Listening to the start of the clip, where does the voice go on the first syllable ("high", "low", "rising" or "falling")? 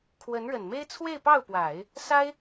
rising